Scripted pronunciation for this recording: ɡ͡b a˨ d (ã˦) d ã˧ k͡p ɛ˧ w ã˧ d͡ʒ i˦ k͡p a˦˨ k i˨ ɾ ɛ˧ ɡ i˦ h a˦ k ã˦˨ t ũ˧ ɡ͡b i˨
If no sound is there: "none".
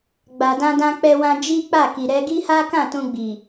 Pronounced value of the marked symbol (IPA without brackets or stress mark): ã˧